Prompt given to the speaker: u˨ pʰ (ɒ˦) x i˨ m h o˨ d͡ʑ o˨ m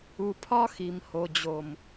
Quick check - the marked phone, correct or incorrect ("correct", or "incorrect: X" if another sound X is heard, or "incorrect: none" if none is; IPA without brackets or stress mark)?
correct